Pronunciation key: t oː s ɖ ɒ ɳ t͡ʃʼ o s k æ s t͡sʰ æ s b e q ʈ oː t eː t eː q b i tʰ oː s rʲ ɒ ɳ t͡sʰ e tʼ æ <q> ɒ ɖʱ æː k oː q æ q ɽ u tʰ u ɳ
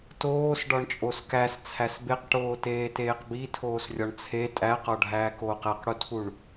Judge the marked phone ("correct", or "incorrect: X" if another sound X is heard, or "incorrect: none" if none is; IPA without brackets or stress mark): correct